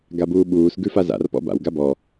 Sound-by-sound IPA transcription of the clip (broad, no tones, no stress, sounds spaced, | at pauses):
ɡ a b uː ɓ uː s ɡ ʉ f a z a̰ r p ɔ̰ b a̰ w ɡ a b ɔ